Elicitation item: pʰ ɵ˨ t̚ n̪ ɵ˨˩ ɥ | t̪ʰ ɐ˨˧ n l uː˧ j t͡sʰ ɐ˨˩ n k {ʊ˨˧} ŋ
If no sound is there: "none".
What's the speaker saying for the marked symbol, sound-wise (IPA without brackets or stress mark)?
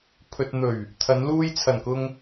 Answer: ʊ˧